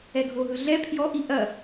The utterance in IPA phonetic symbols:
ɛ ɡʱ o ɦ ɯ ɮ ɛ pʰ j ɔ ʔ i ʔ ɐ

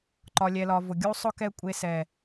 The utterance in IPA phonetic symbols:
ǃ ɒ˨ lʲ ɛ˨ l ɒ˨ v ʊ˨ ɡʲ u˦ sˤ ʊ˦ k ɛ˦ kʷʼ e˦ s ɛ˦

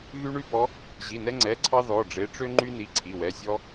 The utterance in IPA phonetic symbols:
ɣ y˦ ɳ y˦ b ɔ˨˦ | ʑ i˩˧˩ n ɛ˦ ŋ͡ǀ ɛ˩˧˩ ǀʰ ɑ˦ ð ɔ˩˧˩ ɖ͡ʐ e˨˦ ʈ͡ʂ ø˦ ŋ͡ǃ y˦ n i˩˧˩ ǀʰ i˩˧˩ w ɛ˩˧˩ sʲ ɔ˦

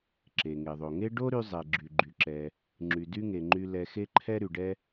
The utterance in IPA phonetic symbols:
ǁ e˩ ŋ e˩ ðˤ o˩ ŋ e˥ ɖ o˥ ɾ y˧ zˤ ɛ˩ ɡ͡ǁ y˩ ɡ͡ǃ y˩ ǁ ɛ˩ | ŋ͡ǁ y˩ d y˥ ŋ e˩ ŋ͡ǃ y˧ l ɛ˧ x e˥ ǃʰ ɛ˥ ɾ y˩ ɖ ɛ˥

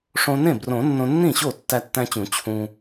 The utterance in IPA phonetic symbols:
ʂ õ˧ n ẽ˥˩ b r õ˨˩˦ nː õ˧ nː ĩ˥˩ ɕ o˥˩ tː æ˧ tː æ̃˧ t͡ɕ ũ˨˩˦ t͡ɕʰ ũ˧

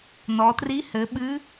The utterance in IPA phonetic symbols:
n ɔ˩˧ t r i˧˥ h ɘ˩˧ ɓ ɨ˧˥

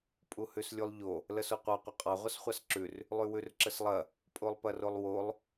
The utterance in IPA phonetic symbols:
pʼ u h ʉ s lʲ u lˠ ʎ o | l ə s o qʷ ɑ qʷ ɐ qʼ ɑ ʁʷ ɐ s χʷ ɑ s ǁ ʉ r | lˠ ʉ w ʉ r ǁ ə s lˠ ɐ | pʼ o lˠ p ɐ r o lˠ w o lˠ

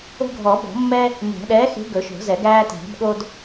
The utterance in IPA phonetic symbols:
o̤˦ ɡʱ ɔ˨˩˦ b ɔ̤˨˩˦ mː ɛ˦ | n æ̤˨˩˦ ɗ ɛː˨˥ x e̤˨˥ ɡ ɵ˨˩˦ ʃ o̤˨˩˦ z ɛ˨˩˦ ɡ æː˦ t æ̤˨˩˦ b ɠ o˦ d

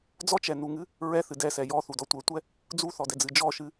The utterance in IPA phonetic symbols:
d͡z ɔ t͡ʃ ɛ n u ŋ ɨ | ɹ ɛ θ ɨ d ɛ s ɛ j ɔ θ u d ɔ tʷ ɛ tʷ ɛ | d͡z u θ ɔ d ɛ d͡z ɨ d͡ʒ ɔ ʃ ɨ

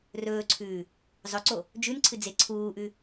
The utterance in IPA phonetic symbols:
r ɵː ǀʰ ʉː | zˤ ɵ ǀ o | d͡ʒ ʉ n ǀʰ ɨ d͡z e ǀʰ uː ʔ ʉ

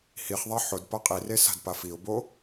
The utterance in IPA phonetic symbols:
h i χ ðˤ a ħ ʊ d p a qʼ i r e s a̤ d p a f i ʊ̯ b o

